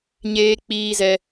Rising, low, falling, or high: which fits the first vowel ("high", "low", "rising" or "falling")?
high